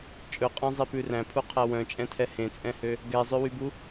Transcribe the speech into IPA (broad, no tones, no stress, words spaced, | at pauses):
t͡ʃʼɵqʼæ̃zˤipʉ ræ̃pʰuqʰæ wœ̃t͡ʃʼɛ̃tʰɛ hẽt͡sʼɛ̃hø | ɡɛzˤøwybu